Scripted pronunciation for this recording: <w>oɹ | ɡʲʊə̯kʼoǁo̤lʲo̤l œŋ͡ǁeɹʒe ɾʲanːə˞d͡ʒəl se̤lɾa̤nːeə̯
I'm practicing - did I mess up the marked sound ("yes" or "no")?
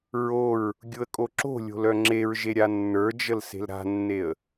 yes